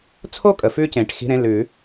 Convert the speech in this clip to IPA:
t͡sʰ o˥˧ kʼ ə˩ f ʉ˧ c ẽ˩ ʈ x i̤˧˥˧ ɾ ẽ˧˥˧ l ʉ˨˩˦

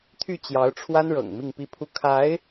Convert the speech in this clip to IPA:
t̪ʰ y˥˩ t͡ɕ j ɑ˧˥ ʊ̯ ʈ͡ʂʰ w a˥ n ɻ ɤ̰˨˩ ŋ m i˥˧ ŋ p i˥˩ pʰ u˥ kʰ a˧˥ ɪ̯

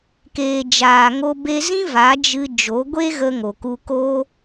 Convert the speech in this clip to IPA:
k eː˨ d͡ʒ aː˨ ŋ o˧ b e˧ z ĩ˦ v a˨˦ d͡ʒ ɨ˧ d͡ʒ o˨˦ ɡʷ e˦ ɣ ə˧ ŋ o˨ k u˧ k oː˦

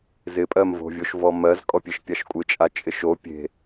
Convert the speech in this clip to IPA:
z ɪ pʼ ɜ m v o̤ vʲ o ʃ v ɔ m ɜ z kʼ ɔ pʲ e ʃ pʲ a ʃ kʷʼ ɪ t͡ʃʼ a t͡ʃʼ ɪ ʃ o pʲ e̤

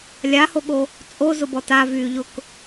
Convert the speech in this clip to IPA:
lʲ a h o ɠ o | t͡sʼ o z ʊ b ɔ t a v yː ʎ ʊ k

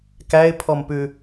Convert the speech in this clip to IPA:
k æ ɪ̯ pʰ ɔ m p ʉ

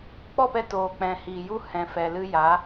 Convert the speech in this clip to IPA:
k͡p ɔ˦˨ p ɛ˧ t oː˨ k͡p ɛ̃˨ h iː˨ j u˦ h ɛ̃˨ f ɛ˨ l ɨ˧ j a˨˦

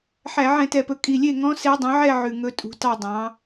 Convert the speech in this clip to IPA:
ħ æ˧˩˧ ʕ ɛ̃˧˩˧ t ɛ˨˩ p ɵ˩˥ kʼ i˨˩ lʲ e˥˩ ŋ ɔ̃˧˥ s e˧˥ dˤ œ̃˩˥ ʕ ɛ˥˧ ʕ ʉ˨˩ ŋ ɵ˧˥ tʼ ṳ˩˥ t ɑ˥˧ dˤ ɑ̃˩˥

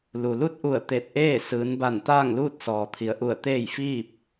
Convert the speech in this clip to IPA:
l u˩ l u˥˨ t̚ ʔ u˧˩ ə̯ t̪ e˧˩ t̚ ʔ eː˥˨ s ɯː˩˧ n b a˧˩ n t̪ aː˥˨ ŋ l uː˥˨ t̚ s ɔː˩ t̪ʰ i˩˧ ə̯ ʔ u˧˩ ə̯ t̪ eː˥˨ j f iː˥˨ p̚

